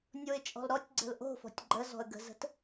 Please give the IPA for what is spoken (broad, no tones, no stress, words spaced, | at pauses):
nʲoɪ̯t͡ʃʼɔ̤lɾɔtʲɡ͡ǀə̤l ʔo̤fɔ̤tʲ ɡ͡ǃəzɔ̤ə̯ ɡə̤zə̤t